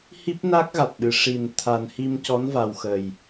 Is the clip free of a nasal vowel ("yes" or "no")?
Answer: yes